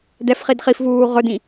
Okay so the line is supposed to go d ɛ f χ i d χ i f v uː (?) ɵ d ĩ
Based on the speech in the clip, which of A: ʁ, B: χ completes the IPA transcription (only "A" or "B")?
A